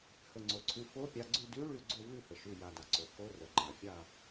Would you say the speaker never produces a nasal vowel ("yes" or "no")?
yes